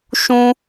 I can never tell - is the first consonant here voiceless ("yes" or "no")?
yes